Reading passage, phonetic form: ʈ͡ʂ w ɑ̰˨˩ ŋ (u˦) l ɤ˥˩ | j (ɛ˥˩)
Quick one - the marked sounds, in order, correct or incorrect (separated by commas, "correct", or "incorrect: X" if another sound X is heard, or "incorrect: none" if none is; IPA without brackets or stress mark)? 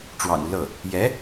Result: correct, incorrect: ɛ˧˥